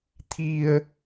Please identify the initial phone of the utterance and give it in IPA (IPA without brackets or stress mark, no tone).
t̪ʰ